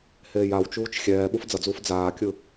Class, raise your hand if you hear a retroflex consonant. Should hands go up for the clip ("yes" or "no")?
no